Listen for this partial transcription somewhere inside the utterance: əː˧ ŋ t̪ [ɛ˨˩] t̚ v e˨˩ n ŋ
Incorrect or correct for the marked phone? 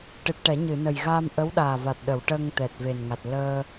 correct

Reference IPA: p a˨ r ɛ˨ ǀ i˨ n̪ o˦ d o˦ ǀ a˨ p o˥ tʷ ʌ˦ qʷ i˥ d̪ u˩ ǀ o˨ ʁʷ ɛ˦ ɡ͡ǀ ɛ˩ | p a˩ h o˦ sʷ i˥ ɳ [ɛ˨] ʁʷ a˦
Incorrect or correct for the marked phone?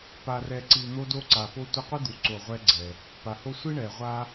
incorrect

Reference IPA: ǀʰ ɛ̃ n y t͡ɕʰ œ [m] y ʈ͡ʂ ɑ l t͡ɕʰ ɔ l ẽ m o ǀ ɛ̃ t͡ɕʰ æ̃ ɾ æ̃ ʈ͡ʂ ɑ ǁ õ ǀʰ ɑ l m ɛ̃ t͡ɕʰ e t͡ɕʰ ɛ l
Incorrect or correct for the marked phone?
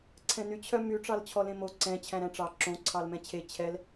correct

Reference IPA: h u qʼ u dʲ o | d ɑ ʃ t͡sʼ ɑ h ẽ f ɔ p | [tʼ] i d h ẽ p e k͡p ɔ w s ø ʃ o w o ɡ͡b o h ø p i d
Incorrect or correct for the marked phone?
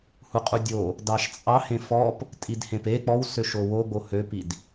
correct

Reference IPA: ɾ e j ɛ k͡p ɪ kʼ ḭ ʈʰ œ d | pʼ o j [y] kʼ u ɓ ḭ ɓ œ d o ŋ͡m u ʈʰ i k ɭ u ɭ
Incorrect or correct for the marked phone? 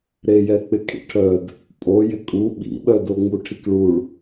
incorrect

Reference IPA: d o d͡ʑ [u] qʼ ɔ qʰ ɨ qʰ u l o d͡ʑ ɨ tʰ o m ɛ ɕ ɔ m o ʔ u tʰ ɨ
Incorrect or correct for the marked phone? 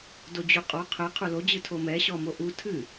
correct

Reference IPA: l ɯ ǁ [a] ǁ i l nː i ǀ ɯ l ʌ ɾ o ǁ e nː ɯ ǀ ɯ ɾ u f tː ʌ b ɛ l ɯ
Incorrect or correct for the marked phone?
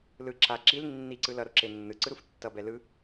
correct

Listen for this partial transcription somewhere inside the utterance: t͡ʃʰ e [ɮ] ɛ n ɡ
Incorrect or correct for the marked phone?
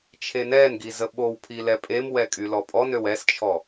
incorrect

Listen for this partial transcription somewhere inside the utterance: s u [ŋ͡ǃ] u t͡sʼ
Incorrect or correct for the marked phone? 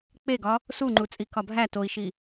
correct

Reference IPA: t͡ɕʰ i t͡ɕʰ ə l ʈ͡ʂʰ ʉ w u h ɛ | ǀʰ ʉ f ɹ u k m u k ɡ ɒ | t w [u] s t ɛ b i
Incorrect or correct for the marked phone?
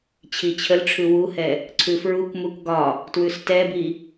incorrect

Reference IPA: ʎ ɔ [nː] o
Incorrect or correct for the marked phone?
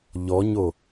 incorrect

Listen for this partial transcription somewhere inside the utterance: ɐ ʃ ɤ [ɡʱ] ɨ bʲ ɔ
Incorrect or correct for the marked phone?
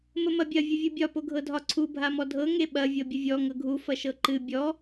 incorrect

